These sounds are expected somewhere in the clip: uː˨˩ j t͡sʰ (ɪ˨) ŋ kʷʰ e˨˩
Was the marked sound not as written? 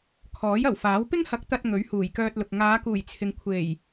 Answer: no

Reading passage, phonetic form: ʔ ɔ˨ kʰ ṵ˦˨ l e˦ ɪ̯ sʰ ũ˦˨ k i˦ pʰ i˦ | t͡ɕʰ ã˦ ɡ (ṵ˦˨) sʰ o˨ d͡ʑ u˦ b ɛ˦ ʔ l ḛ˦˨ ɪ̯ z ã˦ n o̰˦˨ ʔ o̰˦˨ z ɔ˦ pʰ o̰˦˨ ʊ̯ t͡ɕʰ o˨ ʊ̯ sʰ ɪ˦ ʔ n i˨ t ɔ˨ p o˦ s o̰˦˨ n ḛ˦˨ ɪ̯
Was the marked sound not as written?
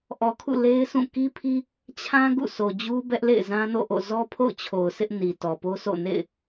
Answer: no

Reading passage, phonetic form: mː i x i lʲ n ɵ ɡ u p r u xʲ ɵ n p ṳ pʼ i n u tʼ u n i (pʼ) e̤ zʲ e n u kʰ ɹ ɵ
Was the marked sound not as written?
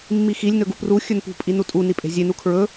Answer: no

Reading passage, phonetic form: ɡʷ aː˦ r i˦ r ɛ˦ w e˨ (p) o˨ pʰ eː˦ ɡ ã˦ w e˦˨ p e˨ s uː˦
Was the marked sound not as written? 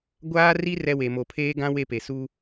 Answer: yes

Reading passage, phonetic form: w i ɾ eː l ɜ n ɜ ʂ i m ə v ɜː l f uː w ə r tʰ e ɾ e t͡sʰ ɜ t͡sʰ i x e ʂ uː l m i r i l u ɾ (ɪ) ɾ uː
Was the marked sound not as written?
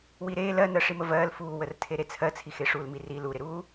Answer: no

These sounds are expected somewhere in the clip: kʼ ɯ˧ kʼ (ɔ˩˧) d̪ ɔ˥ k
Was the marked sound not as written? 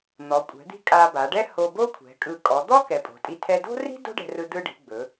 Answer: no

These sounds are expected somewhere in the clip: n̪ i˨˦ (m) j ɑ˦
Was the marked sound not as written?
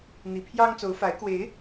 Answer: yes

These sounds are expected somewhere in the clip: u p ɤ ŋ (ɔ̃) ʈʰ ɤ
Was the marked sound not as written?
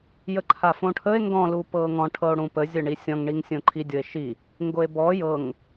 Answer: no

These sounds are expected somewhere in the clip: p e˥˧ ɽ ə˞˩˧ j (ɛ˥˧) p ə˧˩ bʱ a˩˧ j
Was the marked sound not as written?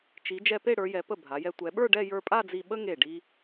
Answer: yes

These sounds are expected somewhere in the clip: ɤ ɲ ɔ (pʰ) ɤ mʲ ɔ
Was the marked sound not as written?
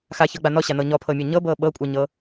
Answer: no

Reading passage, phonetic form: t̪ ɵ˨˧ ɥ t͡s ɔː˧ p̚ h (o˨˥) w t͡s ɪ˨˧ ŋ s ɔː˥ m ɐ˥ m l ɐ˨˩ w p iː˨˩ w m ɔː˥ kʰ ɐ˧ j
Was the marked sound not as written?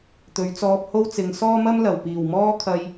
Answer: yes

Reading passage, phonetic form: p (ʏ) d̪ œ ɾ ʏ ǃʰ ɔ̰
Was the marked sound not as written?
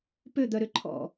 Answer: no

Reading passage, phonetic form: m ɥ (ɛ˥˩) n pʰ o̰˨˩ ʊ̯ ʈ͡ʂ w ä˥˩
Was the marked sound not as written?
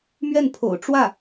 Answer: no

